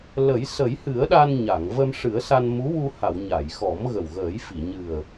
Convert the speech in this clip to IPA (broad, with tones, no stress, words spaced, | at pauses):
lə˨˩˦j sə˨˩˦jhɨ˨˩˦ə̯ɗa˧n ɲa˨˩˨ŋ və˧mʂɨ˨˩˦ə̯sa˧n mu˧˥wu˧ha˨˩˨w ɲa˨˩˨jxɔ˨˩˦mɣə˨˩w ɣəː˨˩˦jfi˨˩˨ ɲɨ˨˩ə̯